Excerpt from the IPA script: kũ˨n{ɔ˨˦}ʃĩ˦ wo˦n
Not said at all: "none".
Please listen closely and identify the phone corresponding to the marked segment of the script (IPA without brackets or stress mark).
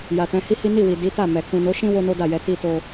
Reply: o˨˦